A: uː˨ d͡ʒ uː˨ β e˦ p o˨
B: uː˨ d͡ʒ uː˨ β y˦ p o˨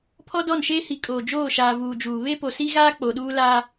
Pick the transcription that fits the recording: A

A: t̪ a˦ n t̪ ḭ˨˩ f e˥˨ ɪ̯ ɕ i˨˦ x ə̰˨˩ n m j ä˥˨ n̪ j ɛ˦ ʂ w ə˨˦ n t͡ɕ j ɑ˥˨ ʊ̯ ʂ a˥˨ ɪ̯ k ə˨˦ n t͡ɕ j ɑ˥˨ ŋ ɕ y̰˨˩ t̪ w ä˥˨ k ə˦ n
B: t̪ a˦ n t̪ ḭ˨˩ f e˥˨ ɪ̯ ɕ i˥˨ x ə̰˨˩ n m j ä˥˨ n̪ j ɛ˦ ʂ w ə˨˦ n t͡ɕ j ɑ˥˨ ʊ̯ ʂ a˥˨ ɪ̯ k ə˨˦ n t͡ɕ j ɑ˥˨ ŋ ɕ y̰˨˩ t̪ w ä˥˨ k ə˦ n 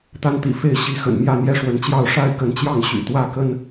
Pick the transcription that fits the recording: A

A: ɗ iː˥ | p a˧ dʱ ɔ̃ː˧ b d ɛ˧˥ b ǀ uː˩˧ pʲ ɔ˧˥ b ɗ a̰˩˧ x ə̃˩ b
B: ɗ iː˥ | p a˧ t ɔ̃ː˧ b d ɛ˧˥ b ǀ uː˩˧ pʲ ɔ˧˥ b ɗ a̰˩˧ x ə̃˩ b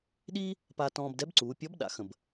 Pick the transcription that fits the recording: B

